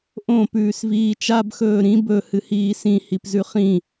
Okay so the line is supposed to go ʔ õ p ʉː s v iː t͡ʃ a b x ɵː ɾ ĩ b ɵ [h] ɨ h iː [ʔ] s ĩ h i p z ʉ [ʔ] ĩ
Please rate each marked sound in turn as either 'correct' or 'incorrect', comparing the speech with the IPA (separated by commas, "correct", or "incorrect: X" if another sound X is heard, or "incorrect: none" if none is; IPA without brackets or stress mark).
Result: correct, incorrect: none, incorrect: χ